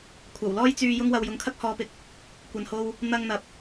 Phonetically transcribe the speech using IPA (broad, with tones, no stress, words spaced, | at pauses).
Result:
kʷʰɐ˨˩wlɔː˥jt͡syː˧ jʊ˧ŋwɐ˨wjʊ˨ŋkʰɐ˥k̚ hɔː˧pɪ˧k̚ | kʷɐ˨nho˧w | n̪ɐ˧ŋn̪ɐ˨p̚